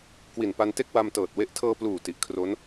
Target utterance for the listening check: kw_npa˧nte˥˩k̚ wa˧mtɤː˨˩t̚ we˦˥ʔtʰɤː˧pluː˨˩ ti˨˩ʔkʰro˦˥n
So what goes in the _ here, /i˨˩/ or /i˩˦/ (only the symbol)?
i˨˩